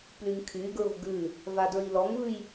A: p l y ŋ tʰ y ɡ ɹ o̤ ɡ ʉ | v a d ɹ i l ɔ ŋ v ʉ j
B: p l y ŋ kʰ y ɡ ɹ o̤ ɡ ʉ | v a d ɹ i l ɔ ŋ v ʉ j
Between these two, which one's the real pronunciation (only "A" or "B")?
B